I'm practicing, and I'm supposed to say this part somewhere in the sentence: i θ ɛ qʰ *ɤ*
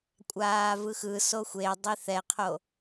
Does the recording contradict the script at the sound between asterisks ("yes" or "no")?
yes